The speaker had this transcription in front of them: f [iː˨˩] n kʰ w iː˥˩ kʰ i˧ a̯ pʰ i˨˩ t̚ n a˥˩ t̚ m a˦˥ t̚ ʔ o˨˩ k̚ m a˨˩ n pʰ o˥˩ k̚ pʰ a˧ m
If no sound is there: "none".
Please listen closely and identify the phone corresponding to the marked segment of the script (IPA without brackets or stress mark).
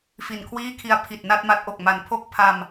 i˨˩